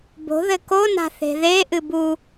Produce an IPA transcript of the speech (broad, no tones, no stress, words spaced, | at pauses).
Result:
bo̤ ðɘkona̤ θe̤ðeʔɨ bu